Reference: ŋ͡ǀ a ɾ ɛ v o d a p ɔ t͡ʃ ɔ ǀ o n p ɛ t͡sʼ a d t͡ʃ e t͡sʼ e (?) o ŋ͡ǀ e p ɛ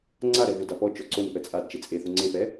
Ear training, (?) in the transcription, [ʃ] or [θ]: θ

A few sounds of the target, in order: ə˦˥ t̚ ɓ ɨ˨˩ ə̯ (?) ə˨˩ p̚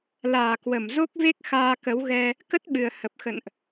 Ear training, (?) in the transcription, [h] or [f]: h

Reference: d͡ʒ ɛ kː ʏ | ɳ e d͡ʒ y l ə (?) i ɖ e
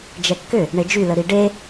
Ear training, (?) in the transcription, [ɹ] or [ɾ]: ɾ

